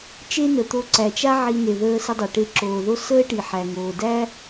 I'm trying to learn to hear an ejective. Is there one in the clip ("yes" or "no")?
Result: no